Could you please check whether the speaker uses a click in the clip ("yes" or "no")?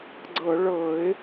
yes